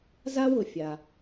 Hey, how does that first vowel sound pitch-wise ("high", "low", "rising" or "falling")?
high